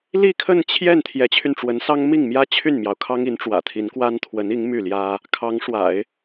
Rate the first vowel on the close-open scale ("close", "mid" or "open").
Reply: close